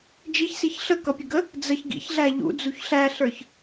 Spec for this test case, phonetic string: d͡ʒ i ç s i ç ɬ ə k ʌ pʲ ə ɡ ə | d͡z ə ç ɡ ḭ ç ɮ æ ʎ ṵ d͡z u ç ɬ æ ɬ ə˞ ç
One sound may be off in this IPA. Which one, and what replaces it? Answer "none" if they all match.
none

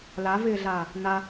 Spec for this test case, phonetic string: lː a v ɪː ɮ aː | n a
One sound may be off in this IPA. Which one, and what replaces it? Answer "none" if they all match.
lː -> l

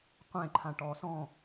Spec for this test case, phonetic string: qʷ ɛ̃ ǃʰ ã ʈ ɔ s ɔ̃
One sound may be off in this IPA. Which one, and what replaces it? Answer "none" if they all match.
none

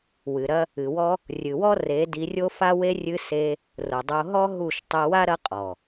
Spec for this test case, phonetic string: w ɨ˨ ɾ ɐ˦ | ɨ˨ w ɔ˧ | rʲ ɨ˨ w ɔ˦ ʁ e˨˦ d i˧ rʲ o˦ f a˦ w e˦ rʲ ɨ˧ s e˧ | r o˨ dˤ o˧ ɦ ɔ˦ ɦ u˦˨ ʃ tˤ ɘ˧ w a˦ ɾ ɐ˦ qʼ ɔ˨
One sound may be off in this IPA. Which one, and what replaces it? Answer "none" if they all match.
ʁ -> r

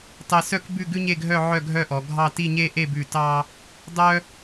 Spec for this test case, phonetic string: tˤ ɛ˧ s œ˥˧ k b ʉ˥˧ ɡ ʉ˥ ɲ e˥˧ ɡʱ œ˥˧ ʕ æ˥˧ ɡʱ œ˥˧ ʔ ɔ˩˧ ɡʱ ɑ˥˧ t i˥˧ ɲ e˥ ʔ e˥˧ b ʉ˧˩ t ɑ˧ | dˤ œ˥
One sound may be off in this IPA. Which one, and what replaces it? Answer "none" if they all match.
æ˥˧ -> œ˥˧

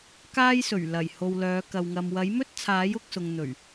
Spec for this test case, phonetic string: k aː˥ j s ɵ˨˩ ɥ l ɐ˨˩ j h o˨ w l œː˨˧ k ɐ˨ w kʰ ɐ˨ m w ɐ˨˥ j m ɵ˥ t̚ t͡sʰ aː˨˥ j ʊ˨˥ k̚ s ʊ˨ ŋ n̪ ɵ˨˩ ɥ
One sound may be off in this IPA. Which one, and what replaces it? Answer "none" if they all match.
kʰ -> ŋ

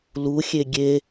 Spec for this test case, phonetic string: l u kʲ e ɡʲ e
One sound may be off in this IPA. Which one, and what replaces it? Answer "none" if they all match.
kʲ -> xʲ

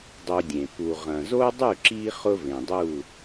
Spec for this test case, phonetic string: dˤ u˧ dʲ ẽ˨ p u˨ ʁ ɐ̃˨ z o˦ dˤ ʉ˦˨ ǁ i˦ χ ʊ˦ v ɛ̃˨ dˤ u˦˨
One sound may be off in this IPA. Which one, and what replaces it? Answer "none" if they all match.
ɛ̃˨ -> ẽ˨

